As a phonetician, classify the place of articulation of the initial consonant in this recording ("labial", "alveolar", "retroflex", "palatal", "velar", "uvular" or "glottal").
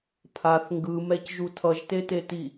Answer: labial